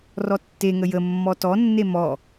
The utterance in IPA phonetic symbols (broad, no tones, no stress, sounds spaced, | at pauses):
r ɔ tː e ŋ ə j ə mː ɔ t ɔ nː e m ɔ